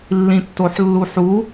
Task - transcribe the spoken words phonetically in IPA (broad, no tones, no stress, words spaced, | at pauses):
lːĩtːoħlːuħu